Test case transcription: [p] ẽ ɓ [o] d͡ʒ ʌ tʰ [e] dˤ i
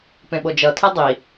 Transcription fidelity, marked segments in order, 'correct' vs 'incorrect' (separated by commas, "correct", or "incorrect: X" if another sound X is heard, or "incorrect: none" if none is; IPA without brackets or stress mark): correct, correct, correct